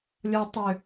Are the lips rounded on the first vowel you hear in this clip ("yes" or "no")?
yes